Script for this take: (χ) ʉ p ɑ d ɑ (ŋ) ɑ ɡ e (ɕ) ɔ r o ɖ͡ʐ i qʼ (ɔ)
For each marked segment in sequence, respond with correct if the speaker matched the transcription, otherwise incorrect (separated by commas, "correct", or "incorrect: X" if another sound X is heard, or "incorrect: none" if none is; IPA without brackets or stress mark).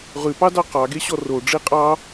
incorrect: ʁ, incorrect: q, correct, incorrect: ɑ